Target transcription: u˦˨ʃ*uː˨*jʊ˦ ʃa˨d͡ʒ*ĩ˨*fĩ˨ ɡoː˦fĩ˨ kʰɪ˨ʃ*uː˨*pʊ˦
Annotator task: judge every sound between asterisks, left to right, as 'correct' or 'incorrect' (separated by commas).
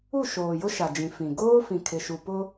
incorrect, correct, incorrect